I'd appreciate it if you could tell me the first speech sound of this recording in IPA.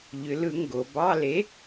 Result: ʎ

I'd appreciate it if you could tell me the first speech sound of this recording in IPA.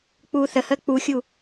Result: k͡p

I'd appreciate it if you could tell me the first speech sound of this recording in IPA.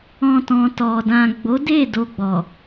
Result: ɔ̃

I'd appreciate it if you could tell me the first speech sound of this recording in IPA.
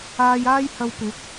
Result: aː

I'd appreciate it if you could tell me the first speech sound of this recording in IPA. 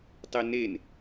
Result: tˤ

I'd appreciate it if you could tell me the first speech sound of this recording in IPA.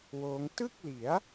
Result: w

